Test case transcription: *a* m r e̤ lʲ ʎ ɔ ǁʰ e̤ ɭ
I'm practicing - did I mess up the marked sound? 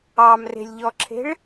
yes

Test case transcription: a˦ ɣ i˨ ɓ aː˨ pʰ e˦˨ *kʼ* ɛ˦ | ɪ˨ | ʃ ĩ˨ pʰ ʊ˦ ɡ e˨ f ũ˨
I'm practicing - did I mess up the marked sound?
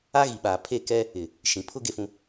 yes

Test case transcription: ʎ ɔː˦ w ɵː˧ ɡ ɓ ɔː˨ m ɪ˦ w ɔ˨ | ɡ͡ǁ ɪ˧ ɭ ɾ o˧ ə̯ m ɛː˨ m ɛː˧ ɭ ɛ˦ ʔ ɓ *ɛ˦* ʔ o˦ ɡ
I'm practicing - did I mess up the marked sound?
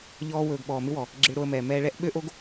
yes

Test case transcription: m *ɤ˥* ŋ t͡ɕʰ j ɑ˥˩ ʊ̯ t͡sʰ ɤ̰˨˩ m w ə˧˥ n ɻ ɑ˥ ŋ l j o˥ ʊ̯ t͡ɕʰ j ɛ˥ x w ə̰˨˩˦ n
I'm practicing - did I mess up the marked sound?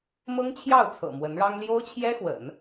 no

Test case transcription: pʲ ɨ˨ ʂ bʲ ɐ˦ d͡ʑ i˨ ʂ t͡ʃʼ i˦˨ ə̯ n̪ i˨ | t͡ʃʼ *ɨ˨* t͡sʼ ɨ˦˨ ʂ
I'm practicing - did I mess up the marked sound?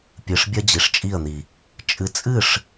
no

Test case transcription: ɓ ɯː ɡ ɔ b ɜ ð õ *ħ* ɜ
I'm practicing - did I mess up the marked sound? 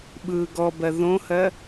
yes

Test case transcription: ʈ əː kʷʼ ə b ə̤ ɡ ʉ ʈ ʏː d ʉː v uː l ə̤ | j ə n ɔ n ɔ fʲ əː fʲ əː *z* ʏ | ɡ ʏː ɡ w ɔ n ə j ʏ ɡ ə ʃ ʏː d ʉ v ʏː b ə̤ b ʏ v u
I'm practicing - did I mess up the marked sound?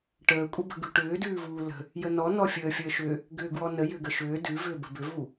yes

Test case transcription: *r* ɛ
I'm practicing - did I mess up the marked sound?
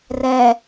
no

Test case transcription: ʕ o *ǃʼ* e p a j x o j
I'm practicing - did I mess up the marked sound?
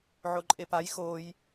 no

